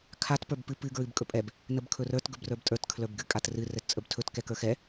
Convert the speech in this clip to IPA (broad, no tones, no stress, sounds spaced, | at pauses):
kʰ a t p ə˞ b p ɨ p ɨ ɡ ɹ ɨ b kʼ ɵ pʼ ɛ b | n ə b kʰ ɵ r ə˞ t ɡ ɵ b r ə˞ b tʼ ə˞ t kʰ l ə˞ b ɡ ɨ kʼ a t r ɨ r ɛ t t͡sʼ ə b tʰ ɵ t k ɛ k ə˞ x ɛ